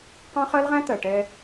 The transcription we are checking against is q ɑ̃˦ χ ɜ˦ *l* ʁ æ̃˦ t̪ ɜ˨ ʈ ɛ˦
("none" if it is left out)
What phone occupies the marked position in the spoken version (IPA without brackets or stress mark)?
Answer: l